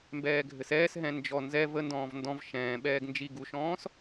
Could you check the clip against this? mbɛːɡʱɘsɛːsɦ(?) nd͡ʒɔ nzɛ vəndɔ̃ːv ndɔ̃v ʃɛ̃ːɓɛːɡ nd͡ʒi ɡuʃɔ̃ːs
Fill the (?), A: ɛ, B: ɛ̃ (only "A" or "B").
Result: B